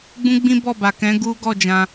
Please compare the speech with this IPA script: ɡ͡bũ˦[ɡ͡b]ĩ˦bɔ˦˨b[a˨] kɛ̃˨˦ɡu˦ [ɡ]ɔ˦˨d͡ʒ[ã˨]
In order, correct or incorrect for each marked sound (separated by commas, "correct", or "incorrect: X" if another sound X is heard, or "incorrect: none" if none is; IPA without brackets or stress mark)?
correct, correct, correct, incorrect: ã˧